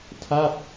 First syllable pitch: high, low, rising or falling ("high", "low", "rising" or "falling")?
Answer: falling